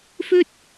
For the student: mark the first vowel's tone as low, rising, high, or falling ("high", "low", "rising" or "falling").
high